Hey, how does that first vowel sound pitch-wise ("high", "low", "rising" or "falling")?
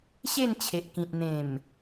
falling